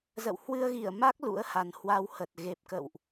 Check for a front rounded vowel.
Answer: absent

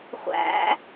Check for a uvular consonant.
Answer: present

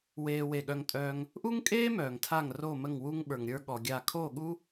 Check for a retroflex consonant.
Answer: absent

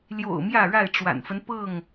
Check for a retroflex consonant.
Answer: present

